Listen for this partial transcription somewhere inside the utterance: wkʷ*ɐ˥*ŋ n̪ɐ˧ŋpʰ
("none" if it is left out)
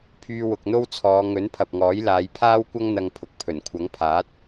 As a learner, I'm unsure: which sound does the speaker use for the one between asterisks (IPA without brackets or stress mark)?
ɐ˥